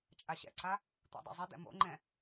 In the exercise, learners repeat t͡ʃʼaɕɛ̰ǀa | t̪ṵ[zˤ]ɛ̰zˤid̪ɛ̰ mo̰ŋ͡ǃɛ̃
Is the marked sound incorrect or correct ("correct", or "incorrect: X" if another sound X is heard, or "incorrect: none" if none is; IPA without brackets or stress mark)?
incorrect: dˤ